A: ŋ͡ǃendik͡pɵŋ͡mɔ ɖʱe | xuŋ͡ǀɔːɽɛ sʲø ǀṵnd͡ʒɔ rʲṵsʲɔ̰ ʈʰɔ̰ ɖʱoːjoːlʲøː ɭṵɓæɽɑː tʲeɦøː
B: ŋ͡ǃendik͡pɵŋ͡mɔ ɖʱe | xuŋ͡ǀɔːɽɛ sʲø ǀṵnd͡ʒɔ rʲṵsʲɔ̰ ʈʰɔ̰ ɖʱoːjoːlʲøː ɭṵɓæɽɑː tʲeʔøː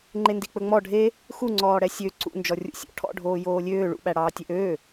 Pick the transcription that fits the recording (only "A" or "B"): B